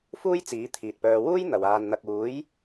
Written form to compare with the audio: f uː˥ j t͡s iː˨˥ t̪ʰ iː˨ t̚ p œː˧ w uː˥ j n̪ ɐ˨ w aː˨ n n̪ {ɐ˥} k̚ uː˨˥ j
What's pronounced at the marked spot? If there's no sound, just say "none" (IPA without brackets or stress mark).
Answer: ɐ˨